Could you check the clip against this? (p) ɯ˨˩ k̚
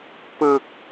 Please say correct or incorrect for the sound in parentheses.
correct